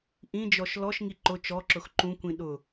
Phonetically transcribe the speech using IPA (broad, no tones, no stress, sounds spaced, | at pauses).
ʔ ĩ d͡ʒ ɔ ʃ l ɔ ʃ ŋ i ǃ ʊ t͡ʃ ɔ ǁ ʊ x ǃ ũ kʷ ĩ ɗ ʊ